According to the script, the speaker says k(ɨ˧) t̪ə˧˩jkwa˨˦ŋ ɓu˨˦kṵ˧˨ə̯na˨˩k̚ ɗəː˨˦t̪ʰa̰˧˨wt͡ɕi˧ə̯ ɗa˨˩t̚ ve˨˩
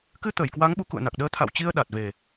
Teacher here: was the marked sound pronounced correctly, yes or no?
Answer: yes